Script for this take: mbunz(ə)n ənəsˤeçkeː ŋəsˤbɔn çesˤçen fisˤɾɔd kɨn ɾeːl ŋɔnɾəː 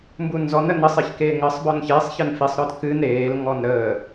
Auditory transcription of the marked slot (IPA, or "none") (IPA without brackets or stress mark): ɔ